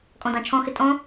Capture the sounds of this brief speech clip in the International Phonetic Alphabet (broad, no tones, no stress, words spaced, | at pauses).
kʼɔ̃dɑ̃t͡ʃʰɔ̃xɪ tʼɔ̃